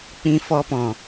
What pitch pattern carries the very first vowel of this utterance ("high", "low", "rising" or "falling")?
high